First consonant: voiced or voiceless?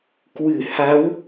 voiceless